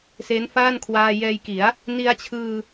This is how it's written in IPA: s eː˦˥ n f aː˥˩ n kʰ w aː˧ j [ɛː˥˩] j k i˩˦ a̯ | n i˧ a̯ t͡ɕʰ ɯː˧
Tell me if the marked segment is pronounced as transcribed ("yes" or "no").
no